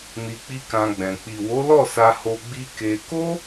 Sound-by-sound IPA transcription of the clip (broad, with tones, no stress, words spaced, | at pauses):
ni˧k͡pi˦kã˧ɡ͡bɛ̃˨ k͡pi˨wo˨˦lɔ˦˨ sa˧ho˧ ɡ͡bi˦ke˧ ko˦